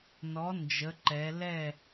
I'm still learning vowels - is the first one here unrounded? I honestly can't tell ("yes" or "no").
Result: no